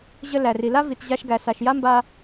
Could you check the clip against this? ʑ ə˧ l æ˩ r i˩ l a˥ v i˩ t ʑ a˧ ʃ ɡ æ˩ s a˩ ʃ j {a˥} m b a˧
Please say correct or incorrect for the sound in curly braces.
correct